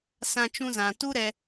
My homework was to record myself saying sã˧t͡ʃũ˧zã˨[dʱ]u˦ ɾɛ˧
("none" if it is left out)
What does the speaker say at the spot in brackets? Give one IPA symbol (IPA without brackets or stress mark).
t